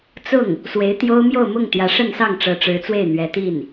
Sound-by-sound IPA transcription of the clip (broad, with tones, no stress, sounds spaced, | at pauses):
t͡s ʊ˥˩ ŋ | s w e˧˥ ɪ̯ t̪ j o˥ ʊ̯ m j o˥˧ ʊ̯ m ʊ˥˩ ŋ t̪ j ä˧˥ ʂ ə˥˧ n s ɑ˥˩ ŋ ʈ͡ʂ ɤ˧˥ ʈ͡ʂ ɻ̩˧˥ t͡s w e˥˩ ɪ̯ n̪ ɥ ɛ˧˥ t̪ i˥˩ n